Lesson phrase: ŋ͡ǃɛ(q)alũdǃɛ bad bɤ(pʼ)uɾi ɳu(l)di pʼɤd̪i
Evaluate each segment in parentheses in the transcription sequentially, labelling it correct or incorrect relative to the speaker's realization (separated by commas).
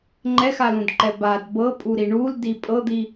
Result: incorrect, correct, correct